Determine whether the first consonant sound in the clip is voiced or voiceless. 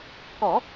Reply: voiceless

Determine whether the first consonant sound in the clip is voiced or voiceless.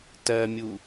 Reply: voiceless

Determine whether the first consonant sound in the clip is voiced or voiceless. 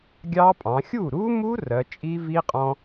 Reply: voiced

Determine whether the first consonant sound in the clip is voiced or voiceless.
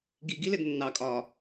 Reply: voiced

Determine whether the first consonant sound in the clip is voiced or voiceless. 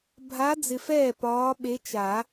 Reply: voiced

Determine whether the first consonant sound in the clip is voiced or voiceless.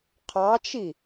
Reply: voiceless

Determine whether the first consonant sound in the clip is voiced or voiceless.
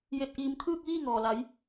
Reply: voiced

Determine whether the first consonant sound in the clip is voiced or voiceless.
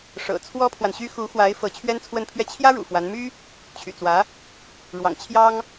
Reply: voiceless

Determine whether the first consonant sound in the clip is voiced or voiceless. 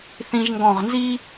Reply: voiceless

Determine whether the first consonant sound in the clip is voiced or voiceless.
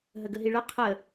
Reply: voiced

